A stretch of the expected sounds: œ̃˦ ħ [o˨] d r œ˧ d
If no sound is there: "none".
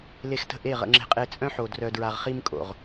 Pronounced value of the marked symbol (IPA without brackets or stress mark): o˨